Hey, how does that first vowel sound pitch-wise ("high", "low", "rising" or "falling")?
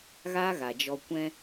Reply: high